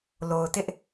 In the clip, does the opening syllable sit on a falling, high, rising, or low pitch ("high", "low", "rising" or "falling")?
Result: low